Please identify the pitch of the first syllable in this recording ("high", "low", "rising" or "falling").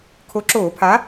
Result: rising